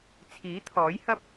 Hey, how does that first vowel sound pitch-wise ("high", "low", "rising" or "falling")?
rising